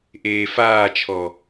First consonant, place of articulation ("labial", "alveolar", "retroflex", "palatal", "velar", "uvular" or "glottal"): glottal